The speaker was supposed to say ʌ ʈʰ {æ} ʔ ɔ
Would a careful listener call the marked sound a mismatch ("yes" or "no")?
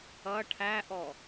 no